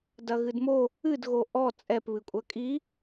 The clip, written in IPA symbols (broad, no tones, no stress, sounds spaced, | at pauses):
d ɐ ɣ ɨ d m o | ɨ d ɣ o ʔ ɔ t͡sʼ ɛ p β ɨ kʷʼ ɐ kʼ i